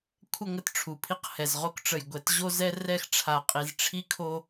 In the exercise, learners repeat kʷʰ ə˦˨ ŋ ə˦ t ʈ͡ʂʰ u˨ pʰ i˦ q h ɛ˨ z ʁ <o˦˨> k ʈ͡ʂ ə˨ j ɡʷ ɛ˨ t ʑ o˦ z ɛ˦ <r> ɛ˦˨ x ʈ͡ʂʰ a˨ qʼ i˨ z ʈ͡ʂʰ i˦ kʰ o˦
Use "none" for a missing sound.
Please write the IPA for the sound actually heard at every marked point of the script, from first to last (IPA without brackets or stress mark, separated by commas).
o˦, r